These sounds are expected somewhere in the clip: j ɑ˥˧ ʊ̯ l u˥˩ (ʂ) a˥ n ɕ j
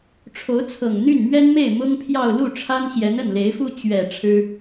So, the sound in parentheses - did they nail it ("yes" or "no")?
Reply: no